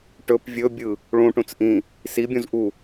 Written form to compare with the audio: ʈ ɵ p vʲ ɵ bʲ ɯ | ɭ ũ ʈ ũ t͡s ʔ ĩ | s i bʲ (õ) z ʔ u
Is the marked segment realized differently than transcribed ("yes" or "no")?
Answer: yes